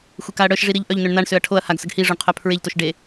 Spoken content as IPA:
xʷ e k a ɐ̯ ɽ œ ʃ ʐ i ɾ i ʎ ʔ œ ʎ n ø ɳ n a ɳ s ø ɐ̯ ʈʰ o ɐ̯ h a ɡ s ə ɡ h i ʐ o ɳ qʰ œ pʰ ɹ e ʎ t o ʃ ɖ e

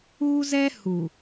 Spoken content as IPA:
uː˦ z ɛ˦ h u˨

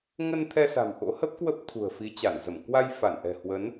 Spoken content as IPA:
ŋ ə˧ n t̪ʰ ɛ˧ s a̤˨˩ m ʔ o̰˧˥ h ə˦˥ p̚ k w ə˦˥ p̚ t̪ʰ ṳ˨˩ ə̯ f i˨˦ t͡ɕ a˧˩ n z ə˧˩ m k w a˧ j f a˧˩ n ʔ ɛ̤˨˩ h w ə˨˦ n

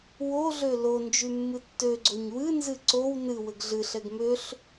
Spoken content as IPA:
w o ɮ ø l o n d͡ʒ y mː ɨ tː ø ɡ͡ǀ o ɲ w ɨ n z ɨ ǀ o w n ɨ w ɘ ɡ ɮ ɨ ɬ ɛ ɡ m ø ɬ

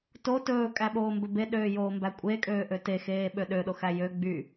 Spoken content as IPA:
t o t ɵː kʼ æ ɓ oː m b ɵ b e ɗ øː j oː m b æ kʷʼ e kʼ øː ʔ ø t e x eː ɓ ø ɗ ø ɗ o x æ j ø ɡ͡b y

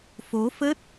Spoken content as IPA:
f o˨˦ f ə˦˥ t̚

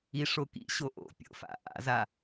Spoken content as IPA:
i ʂ o k ḭ ɕ o ʔ o̰ pʲ o̰ f a̰ ʔ a̰ z a

